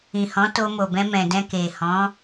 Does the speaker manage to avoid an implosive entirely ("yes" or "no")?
yes